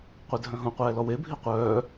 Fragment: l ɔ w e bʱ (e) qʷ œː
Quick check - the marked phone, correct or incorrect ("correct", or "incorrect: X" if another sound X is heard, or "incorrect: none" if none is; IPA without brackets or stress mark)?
incorrect: i